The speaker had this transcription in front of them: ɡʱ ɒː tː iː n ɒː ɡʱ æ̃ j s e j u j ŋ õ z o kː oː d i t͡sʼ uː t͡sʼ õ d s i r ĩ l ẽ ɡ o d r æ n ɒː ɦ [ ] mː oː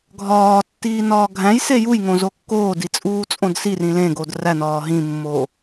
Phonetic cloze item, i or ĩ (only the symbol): ĩ